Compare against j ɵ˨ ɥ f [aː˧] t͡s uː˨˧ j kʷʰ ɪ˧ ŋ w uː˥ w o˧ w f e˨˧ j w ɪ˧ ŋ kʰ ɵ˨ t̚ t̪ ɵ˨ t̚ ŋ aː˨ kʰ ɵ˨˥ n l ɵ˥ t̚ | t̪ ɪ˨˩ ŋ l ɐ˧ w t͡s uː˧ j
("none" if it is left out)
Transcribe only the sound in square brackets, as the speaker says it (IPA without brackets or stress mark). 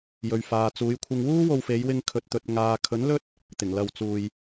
aː˨